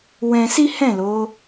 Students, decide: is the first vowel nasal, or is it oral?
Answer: nasal